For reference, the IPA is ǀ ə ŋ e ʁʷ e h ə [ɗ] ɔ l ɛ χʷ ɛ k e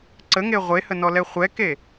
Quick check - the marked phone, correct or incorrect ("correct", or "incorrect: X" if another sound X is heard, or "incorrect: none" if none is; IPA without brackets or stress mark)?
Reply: incorrect: n